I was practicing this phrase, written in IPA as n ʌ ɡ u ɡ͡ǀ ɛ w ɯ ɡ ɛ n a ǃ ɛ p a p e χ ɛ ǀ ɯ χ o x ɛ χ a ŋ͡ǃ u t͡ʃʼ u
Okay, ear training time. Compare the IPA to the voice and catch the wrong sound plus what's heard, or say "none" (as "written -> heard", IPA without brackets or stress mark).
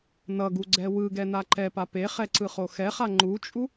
none